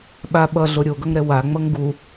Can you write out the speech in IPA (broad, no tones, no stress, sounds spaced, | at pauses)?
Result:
ɓ a ɓ ʌ ɮ o ɾʲ o ɡ ʌ ŋ ɾ ɛ w a ŋ͡m ʌ ŋ ɡ u